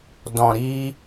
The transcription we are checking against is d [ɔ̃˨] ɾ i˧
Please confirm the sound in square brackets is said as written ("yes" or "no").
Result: yes